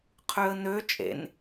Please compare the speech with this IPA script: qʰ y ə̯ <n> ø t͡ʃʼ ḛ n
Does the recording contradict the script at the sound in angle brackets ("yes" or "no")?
no